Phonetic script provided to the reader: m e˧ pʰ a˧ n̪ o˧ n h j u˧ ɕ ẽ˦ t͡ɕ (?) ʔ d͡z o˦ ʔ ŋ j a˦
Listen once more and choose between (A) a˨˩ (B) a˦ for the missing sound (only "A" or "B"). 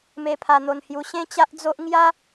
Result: B